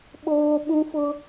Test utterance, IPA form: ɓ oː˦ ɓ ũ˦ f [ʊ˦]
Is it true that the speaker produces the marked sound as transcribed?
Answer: yes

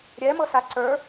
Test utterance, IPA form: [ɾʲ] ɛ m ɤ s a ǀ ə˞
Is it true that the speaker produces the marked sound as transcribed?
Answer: yes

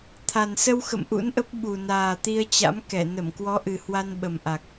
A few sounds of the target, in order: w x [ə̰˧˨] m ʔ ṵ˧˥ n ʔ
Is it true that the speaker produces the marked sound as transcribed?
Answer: yes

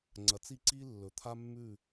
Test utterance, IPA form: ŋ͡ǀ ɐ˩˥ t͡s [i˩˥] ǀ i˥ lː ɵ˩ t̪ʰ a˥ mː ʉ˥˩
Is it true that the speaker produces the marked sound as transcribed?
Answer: no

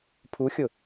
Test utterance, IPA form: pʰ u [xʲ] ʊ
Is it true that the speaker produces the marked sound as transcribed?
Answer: yes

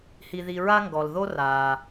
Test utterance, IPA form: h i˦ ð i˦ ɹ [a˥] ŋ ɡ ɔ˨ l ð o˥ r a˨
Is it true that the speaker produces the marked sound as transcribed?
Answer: yes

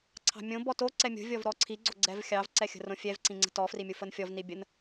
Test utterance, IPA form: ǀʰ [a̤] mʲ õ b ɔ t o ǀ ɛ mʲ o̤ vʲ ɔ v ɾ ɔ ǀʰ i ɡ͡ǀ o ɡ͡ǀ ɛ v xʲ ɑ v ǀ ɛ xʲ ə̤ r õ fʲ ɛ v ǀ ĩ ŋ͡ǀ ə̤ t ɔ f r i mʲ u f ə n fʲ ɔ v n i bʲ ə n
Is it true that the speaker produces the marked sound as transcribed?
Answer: no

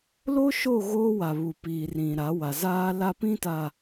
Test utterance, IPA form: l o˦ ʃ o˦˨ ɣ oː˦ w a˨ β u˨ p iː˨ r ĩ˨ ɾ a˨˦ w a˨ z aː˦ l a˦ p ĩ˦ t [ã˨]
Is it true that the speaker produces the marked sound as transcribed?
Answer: no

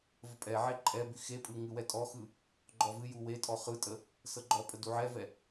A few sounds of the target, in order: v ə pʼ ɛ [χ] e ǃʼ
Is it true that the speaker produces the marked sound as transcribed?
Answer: no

